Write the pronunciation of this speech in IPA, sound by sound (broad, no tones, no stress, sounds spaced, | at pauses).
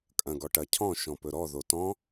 kʼ ɐ̃ ɡ ɔ ʈ ɐ cʰ ɔ̃ ʃ ɔ̃ p ɵ ɾ ɔ ð o t ɔ̃